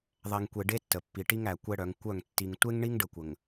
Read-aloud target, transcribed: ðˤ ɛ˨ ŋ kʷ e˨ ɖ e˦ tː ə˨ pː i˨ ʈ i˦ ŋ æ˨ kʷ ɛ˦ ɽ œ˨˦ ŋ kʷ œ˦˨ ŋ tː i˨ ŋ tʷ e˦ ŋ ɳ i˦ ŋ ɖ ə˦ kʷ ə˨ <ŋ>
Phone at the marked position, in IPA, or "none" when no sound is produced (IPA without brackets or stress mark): ŋ